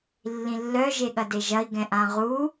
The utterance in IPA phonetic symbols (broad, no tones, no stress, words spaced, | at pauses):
lːĩlːœ ʒeɠɐdeʒɐi̯ ɡɛ̃ʔãʁu